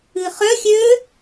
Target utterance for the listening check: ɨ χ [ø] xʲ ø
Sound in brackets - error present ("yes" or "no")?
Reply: yes